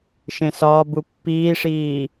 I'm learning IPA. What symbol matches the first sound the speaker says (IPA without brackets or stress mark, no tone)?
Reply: ʃ